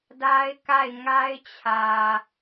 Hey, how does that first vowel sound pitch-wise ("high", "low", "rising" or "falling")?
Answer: high